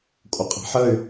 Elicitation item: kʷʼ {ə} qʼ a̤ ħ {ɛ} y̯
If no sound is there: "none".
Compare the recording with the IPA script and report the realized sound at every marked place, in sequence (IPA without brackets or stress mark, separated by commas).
ə, ə